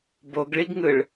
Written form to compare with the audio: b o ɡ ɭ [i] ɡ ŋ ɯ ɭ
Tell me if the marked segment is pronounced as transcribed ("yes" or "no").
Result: yes